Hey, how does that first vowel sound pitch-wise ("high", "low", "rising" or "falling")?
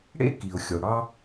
high